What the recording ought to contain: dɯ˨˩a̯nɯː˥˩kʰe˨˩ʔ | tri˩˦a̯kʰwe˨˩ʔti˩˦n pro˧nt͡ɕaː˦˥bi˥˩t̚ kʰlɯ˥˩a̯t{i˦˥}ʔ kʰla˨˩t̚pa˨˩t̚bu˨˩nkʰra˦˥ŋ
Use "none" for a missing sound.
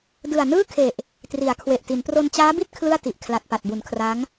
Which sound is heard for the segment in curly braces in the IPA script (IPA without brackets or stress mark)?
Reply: i˨˩